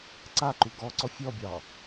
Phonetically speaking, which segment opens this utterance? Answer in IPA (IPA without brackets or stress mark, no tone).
ǀ